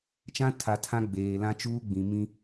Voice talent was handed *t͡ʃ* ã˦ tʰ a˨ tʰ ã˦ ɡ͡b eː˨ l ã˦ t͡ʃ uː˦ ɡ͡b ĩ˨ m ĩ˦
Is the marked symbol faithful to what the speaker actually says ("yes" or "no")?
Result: yes